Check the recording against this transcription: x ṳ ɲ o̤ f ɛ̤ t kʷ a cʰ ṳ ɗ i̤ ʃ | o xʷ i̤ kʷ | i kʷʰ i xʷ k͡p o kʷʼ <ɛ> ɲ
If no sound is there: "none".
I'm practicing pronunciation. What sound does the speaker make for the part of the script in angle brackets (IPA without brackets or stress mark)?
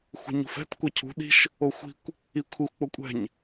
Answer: ɛ̤